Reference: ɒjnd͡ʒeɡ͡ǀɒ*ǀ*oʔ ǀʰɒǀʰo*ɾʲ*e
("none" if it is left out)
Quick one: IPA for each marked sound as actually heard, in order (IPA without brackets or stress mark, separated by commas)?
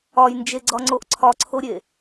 ŋ͡ǀ, ɾʲ